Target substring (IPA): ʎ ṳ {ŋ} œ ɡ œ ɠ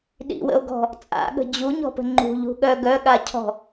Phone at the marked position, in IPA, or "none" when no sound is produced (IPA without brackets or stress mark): ɠ